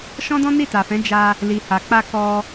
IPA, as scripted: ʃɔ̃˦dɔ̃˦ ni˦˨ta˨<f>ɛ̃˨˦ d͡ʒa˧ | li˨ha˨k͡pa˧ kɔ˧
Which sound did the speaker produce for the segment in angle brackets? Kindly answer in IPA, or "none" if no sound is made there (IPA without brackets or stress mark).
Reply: f